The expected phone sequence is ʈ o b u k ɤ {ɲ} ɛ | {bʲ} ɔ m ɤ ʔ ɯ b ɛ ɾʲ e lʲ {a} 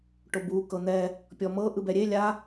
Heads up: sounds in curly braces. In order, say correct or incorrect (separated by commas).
incorrect, incorrect, correct